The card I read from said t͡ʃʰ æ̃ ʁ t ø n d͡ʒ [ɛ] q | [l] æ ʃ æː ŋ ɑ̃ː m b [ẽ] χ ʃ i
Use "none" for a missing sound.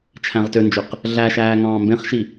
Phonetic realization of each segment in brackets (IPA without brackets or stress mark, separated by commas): ø, ɮ, ẽ